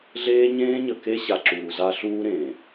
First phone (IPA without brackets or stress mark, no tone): ɮ